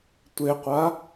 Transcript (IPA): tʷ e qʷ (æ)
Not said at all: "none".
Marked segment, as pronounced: a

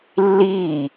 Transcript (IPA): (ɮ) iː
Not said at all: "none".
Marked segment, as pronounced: lː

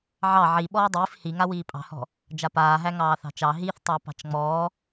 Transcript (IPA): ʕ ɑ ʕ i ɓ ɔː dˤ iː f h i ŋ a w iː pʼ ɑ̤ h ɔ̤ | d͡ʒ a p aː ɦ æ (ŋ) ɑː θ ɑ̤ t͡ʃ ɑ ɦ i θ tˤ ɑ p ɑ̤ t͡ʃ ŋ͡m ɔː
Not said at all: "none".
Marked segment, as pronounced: ŋ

